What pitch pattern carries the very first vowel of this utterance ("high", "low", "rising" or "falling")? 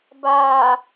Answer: low